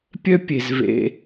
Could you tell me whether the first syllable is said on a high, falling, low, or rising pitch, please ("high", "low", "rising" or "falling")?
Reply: high